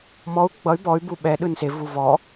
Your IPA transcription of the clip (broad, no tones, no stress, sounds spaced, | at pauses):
m ɔ u̯ ɡ͡b ʌ y̯ b ɔ y̯ b u ɓ ɛ ɗ ɯ n s e v u v ɔ